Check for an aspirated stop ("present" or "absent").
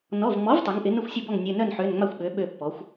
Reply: absent